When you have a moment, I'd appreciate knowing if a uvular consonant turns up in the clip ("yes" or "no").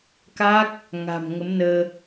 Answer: no